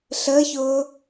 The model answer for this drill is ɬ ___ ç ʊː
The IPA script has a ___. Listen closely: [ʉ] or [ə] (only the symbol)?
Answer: ə